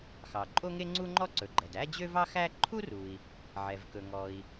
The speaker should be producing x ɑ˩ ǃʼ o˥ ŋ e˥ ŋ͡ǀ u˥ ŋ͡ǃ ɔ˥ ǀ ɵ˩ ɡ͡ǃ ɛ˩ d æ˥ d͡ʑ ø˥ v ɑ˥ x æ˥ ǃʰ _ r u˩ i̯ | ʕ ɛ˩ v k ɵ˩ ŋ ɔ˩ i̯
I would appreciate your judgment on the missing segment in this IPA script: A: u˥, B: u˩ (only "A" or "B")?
A